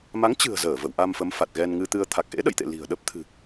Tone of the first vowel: rising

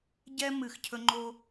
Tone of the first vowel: high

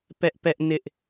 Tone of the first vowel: high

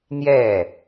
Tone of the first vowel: falling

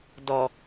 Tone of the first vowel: low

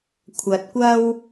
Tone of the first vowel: low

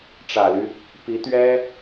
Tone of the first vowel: low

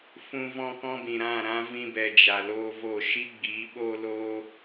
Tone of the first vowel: high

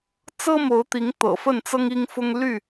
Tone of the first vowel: high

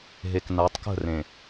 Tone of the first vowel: low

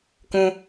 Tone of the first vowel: high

